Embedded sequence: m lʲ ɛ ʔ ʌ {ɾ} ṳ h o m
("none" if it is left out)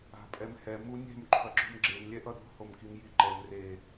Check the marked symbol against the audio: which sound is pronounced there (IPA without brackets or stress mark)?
ɾ